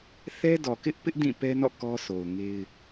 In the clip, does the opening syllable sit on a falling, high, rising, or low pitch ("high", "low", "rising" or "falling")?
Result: high